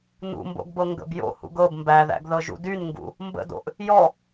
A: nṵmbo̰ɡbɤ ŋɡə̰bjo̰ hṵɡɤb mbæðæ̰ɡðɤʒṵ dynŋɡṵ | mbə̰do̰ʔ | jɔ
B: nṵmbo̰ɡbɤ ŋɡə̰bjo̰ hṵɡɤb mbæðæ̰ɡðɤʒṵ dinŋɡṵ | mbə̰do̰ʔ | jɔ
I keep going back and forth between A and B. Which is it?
A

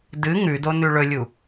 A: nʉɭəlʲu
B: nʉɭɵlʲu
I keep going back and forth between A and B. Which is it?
B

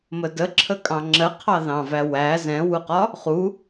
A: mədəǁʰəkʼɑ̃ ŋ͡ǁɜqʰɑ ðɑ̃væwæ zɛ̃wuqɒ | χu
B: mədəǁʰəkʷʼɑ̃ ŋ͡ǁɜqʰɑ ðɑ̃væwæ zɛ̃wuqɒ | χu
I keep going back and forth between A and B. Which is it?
A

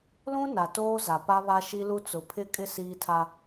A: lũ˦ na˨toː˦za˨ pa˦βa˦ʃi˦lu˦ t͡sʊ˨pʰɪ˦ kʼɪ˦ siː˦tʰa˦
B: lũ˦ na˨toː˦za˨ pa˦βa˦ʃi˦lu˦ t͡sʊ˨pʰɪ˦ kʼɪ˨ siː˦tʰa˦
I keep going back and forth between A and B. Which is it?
A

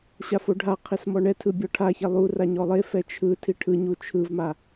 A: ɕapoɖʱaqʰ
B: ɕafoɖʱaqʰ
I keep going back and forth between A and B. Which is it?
B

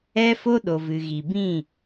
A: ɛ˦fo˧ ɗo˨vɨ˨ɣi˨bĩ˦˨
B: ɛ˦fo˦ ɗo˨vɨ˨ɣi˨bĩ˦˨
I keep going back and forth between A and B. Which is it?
B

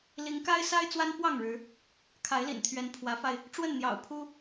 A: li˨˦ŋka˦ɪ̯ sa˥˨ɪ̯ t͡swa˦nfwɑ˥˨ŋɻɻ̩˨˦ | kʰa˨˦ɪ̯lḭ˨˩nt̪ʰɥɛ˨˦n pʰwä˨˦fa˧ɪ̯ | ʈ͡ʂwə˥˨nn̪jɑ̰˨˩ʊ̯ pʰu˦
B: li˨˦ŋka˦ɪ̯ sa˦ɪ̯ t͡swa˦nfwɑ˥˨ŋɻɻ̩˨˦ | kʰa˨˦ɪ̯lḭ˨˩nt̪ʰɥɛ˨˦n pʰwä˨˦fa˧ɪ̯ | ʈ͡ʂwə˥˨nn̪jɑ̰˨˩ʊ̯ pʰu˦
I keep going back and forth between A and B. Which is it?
B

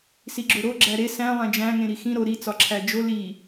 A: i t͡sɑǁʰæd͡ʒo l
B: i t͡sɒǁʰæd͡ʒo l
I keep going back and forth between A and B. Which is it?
B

